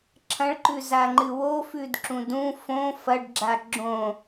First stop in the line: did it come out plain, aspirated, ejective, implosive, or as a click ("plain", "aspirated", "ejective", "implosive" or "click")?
click